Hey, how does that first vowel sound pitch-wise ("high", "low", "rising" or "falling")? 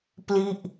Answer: falling